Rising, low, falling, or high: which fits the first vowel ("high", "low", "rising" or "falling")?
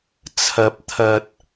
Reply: rising